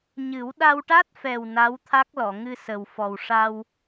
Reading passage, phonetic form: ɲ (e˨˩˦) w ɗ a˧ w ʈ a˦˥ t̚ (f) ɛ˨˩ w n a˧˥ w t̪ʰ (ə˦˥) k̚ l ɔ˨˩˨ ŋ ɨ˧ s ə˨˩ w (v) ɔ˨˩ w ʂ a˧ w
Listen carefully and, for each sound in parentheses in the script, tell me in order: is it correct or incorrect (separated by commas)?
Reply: incorrect, correct, incorrect, incorrect